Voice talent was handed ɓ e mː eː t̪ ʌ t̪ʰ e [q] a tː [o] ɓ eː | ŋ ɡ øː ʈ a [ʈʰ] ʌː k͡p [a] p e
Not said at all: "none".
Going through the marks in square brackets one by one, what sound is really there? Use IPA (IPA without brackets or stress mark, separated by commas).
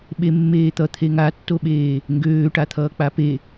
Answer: ŋ, o, t̪ʰ, a